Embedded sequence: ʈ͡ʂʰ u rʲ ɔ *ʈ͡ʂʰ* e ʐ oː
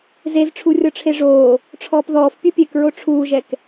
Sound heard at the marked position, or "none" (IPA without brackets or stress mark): ʈ͡ʂʰ